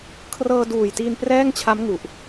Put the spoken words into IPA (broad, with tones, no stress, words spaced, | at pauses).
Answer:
kʰrɤː˧duː˨˩jtiː˧n prɛː˥˩ŋt͡ɕʰa˦˥mŋu˨˩ʔ